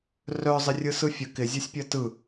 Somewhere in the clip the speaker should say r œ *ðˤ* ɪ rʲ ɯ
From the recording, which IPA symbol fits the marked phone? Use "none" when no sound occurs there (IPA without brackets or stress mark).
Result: zˤ